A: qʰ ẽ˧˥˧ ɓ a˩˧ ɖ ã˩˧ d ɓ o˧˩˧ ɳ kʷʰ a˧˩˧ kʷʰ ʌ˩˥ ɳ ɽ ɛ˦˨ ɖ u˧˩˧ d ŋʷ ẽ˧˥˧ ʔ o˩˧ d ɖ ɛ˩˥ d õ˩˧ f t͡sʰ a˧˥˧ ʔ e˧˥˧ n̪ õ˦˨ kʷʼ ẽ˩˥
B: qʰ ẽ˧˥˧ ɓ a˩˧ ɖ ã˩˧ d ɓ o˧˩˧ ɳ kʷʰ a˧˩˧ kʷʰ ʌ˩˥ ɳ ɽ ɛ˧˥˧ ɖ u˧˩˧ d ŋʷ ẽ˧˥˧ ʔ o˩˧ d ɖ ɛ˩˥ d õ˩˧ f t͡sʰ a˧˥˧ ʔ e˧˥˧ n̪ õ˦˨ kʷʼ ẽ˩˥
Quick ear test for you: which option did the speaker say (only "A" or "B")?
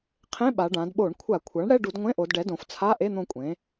B